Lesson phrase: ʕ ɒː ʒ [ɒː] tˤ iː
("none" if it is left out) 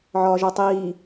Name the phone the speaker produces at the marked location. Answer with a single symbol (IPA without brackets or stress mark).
ɒ